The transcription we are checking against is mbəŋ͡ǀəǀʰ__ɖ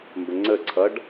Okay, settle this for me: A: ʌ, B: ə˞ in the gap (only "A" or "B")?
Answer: A